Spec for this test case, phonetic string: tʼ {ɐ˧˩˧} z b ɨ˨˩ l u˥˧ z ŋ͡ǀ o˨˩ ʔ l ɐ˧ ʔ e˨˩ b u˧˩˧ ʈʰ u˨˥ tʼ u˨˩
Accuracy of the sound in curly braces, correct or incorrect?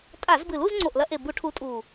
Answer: incorrect